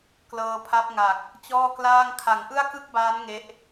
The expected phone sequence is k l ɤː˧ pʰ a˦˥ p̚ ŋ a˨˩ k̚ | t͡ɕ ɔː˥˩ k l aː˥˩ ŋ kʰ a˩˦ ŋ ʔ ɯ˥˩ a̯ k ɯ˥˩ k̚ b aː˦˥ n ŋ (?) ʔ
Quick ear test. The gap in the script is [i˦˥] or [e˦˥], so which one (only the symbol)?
e˦˥